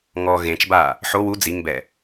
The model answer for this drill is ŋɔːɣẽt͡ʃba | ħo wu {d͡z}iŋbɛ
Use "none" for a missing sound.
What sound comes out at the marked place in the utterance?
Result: d͡z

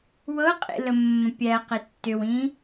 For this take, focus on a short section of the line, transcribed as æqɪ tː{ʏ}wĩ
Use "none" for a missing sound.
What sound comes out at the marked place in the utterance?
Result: ʏ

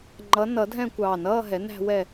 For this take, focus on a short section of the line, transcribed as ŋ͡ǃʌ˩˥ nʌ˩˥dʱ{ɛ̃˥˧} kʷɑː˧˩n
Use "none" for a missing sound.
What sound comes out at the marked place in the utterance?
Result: ɛ̃˥˧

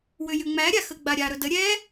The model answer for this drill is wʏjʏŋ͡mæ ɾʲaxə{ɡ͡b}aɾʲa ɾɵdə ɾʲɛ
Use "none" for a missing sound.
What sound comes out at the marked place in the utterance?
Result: ɡ͡b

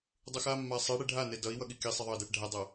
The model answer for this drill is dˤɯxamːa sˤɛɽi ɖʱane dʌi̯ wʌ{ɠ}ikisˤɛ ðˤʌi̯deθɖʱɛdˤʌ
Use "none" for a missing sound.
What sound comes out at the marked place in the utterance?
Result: ɠ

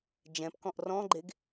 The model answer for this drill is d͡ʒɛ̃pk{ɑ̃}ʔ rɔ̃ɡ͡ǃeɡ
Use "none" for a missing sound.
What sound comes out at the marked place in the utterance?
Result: ɔ̃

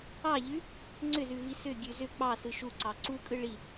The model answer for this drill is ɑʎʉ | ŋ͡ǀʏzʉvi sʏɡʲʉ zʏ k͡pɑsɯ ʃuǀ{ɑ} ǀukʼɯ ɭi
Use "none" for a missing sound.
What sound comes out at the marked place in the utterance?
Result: ɑ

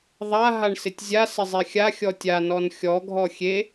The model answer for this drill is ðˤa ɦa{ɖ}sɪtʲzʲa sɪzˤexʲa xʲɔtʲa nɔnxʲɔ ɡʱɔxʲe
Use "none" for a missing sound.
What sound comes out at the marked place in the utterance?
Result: ɳ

